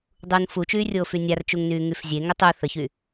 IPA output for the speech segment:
dˤ u n f u t͡ʃ yː rʲ oː f y nʲ a r t͡ʃ u ŋ n yː ŋ y f zʲ e ŋ ʊ tˤ u θ ə ç y

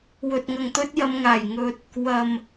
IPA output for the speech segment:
w ɵ˨ t̚ ŋ ɐ˨ ŋ t̪ ɵ˧ t̚ j ɐ˨˧ m ŋ aː˨˩ j ŋ ɵ˨ t̚ | w ɐ˨ m

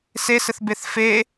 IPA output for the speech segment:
s e s ɘ θ b e θ f e

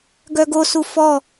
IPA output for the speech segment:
ɡ œ ɡ o s u f ɔ

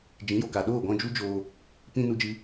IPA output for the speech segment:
d͡ʒ ĩ˨˦ j o˨ k a˨ ɗ oː˦˨ ɡ ɔ̃˧ d͡ʒ u˦ d͡ʒ oː˧ | p ĩ˧ n u˦ d͡ʒ ɨ˦

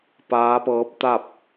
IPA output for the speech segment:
p aː˧˥ p ɤː˧˥ p̚ t̪ a˥˨ p̚

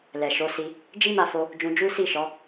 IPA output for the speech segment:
l ɛ˨ ʃ o˨˦ s i˧ | d͡ʒ i˦ m a˧ f o˧ | d͡ʒ ũ˧ d͡ʒ u˦ s i˦˨ ʃ ɔ˨˦

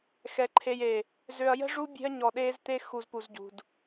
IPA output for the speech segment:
x ɛ˨ ǃʰ e˨ j e˨ | z ø˨ ɐ̯ j ə̤˦ ʐ u˦ bʲ e̤˦ ɐ̯ ɲ ɔ˨ ɗ eː˦ z t̪ e˦ x u˨ z p u˨ z ɟ ṳ˨ d

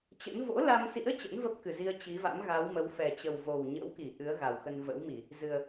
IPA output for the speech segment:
t͡ɕ ə̰˧˥ n v o̰˧˥ l a˧ m s ḭ˧˥ ə̯ t͡ɕ ə̰˧˥ n v ə˦˥ p̚ k ɨ˨˩ z i˧ ə̯ t͡ɕ i˨˦ v a̰˧˥ m ɣ a˨˦ w m ə˨˦ w f ɛ˨˩ t͡ɕ ə˨˩ w v o˨˩ w ɲ ə̰˧˥ w k i˧˩ ʔ ɨ˨˦ ə̯ ɣ a˨˩ w x ə˧ n v ə̰˧˥ w m i˧˩˨ | z ɨ˨˩ ə̯

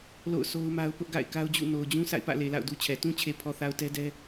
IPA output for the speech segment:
l o̰˦˨ ʊ̯ sʰ o˦ ʊ̯ m a˦ ʊ̯ p ʊ˦ ʔ ɡ a̰˦˨ ɪ̯ k a˦ ʊ̯ d͡ʑ ṵ˦˨ n o˨ ʊ̯ d͡ʑ ũ˦ sʰ a̰˦˨ ɪ̯ p ä̰˦˨ l e˨ l a̰˦˨ ʊ̯ d u˦ t͡ɕʰ ɛ˨ t ũ˦ t͡ɕʰ e˨ pʰ ɔ˨ θ a˨ ʊ̯ t ɛ˦ d ɛ˦

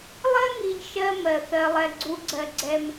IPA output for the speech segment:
lˠ ɜ˦ ŋ i˨ ʎ ʃ ɜ˦ m ɜ˨ θ ɜ˨ lˠ ɛ˨ ɡ͡ǀ u˨ ɡ͡ǀ ɜ˨ ɡ͡ǀ ɛ˦ m

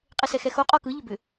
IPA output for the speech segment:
qʼ e s ɛ x ɛ x o qʼ ɔ k ɯ ʎ ʏ b ʏ

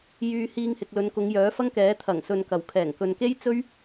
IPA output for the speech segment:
j yː˧ h iː˧ ŋ h ɪ˨ k̚ l ɵ˨˧ n k ʊ˨˧ ŋ j œː˨˥ f ɐ˥ ŋ k ɛː˨˥ t̪ʰ ɐ˨˩ ŋ s ɵ˨ n k ɐ˨˩ w kʰ ɛː˨˩ ŋ k ɵ˨ n k e˥ j t͡s ɵ˥ ɥ

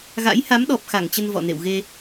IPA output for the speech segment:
ɣ a̰˧˥ j h a˨˦ m ɗ ɔ˨˩ p̚ x a˧˩ ŋ t͡ɕ ə˧ n v ɔ̰˧˨ n ḛ˧˨ w ɣ e˧

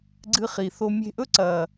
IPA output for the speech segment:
ɡ͡ǀ ɨ˧ χ i˨ θ o˧ mʲ e̤˧ ʔ ɵ˦ ǀ ɐ˧

